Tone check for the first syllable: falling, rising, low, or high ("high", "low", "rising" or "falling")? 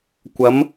rising